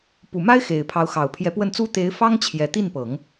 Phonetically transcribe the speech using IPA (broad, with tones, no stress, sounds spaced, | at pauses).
p u˨˩ m a˥ ɪ̯ x e˨˩ ɪ̯ pʰ ɑ˧˥ ʊ̯ x ɑ˨˩ ʊ̯ pʰ j ɛ˧˥ p w ə˥˩ n t͡s u˥ t̪ e˧˥ ɪ̯ f ɑ˥ ŋ t͡ɕʰ j ɛ˨˩ t̪ i˥˩ n p ɤ˨˩˦ ŋ